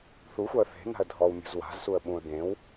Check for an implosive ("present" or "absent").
present